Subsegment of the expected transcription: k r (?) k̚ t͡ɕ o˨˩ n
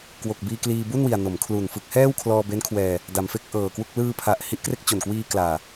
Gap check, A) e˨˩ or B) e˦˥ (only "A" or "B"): B